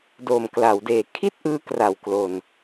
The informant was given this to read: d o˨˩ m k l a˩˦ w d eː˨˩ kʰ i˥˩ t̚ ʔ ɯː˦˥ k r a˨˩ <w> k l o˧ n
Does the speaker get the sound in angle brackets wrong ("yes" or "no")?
no